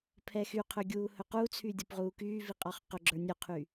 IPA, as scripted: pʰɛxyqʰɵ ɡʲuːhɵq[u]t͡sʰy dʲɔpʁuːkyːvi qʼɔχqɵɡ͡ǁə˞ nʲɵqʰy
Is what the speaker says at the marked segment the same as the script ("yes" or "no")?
yes